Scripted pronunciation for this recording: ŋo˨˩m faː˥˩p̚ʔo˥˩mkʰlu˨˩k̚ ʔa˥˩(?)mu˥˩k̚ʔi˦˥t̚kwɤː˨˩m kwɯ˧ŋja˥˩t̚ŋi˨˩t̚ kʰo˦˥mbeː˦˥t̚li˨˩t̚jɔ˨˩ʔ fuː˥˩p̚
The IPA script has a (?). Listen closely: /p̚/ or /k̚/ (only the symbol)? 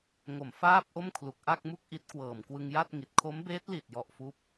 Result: k̚